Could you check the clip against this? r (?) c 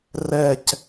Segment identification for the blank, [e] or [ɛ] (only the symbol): ɛ